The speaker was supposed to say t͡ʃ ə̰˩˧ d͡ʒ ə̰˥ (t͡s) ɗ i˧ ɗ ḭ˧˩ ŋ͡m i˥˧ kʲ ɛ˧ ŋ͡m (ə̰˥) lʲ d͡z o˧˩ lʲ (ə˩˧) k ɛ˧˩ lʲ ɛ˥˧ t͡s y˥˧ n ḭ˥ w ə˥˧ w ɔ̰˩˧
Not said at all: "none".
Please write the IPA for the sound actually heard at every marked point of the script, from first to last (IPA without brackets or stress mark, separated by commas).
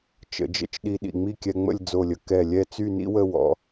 t͡ʃ, ə̰˥˧, ə˩˧